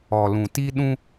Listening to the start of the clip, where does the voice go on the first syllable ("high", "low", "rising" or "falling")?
low